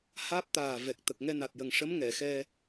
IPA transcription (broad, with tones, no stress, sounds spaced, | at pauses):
h aː˦˥ p̚ t̪ aː˨˩ v ɛ˨˩ k̚ t̪ ə˨˩ k̚ ŋ ɛ˧ n a˨˩ t̚ j ə˨˩ ŋ ʂ ə˧˥ m ŋ ɛ˨˩˨ x ɛ˧